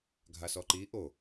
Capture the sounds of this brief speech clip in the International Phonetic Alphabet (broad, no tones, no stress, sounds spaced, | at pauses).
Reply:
ɡʱ a s ɔ ǃ i ʔ o